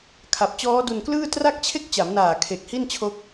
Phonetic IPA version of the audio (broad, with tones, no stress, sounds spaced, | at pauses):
kʰ a˨˩ p̚ t͡ɕ ɔː˦˥ d u˧ n k l ɯː˥˩ t r a˥˩ k̚ t͡ɕʰ e˥˩ k̚ t͡ɕ a˩˦ m n aː˨˩ kʰ e˨˩ k̚ h i˥˩ n t͡ɕʰ o˦˥ k̚